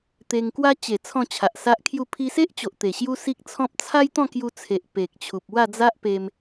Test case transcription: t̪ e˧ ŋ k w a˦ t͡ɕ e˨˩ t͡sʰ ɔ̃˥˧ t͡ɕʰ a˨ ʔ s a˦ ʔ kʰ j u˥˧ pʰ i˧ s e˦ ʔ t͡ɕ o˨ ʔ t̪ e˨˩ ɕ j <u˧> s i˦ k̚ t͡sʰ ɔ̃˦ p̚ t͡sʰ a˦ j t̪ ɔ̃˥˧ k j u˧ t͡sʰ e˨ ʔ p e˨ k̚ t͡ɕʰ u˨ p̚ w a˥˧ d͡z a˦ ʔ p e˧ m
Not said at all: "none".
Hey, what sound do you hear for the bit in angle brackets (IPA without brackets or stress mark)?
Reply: u˦